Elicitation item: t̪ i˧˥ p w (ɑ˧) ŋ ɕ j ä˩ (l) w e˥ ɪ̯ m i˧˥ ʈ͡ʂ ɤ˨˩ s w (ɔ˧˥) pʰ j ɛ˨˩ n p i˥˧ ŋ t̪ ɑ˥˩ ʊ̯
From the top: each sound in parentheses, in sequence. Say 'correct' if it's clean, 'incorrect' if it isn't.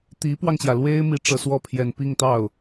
correct, correct, incorrect: ɔ˥˩

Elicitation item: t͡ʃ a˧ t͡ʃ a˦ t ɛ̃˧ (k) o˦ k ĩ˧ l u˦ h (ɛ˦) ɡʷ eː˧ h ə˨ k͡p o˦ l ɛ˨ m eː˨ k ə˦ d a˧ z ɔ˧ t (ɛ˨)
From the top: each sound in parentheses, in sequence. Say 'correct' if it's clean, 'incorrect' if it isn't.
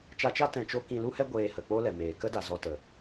incorrect: t͡ʃ, correct, incorrect: ə˨

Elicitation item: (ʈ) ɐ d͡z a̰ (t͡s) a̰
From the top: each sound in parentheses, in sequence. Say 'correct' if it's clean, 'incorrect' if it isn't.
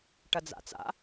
correct, correct

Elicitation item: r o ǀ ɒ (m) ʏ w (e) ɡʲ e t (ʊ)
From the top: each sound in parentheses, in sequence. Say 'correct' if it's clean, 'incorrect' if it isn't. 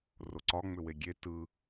incorrect: ŋ͡m, correct, incorrect: ɯ

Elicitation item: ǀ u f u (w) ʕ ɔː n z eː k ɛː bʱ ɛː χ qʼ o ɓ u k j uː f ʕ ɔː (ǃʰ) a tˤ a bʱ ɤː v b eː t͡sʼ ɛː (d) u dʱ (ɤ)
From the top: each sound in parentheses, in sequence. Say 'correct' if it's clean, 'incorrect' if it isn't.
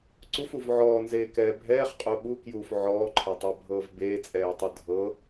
incorrect: v, correct, incorrect: tˤ, correct

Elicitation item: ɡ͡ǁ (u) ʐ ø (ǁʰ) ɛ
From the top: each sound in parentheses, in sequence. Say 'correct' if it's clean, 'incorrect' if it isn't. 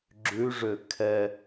incorrect: ʉ, incorrect: kʰ

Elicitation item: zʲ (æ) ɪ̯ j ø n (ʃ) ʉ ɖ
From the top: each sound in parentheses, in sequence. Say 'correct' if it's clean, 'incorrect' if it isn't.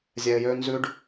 incorrect: ɛ, incorrect: z

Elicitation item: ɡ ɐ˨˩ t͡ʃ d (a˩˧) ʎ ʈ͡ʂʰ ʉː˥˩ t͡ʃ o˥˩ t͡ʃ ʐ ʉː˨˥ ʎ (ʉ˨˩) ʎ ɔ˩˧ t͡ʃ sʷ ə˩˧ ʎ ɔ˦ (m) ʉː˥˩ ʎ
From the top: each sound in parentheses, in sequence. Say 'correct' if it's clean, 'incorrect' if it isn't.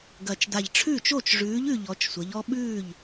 incorrect: a˨˩, correct, incorrect: ɓ

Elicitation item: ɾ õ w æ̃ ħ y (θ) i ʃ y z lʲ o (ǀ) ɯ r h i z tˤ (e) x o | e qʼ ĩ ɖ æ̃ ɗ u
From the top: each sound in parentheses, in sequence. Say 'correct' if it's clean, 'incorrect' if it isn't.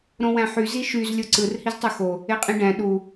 incorrect: z, correct, incorrect: y

